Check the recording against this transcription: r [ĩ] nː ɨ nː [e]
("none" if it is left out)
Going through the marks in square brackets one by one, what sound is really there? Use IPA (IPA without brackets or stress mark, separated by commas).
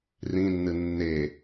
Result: ĩ, e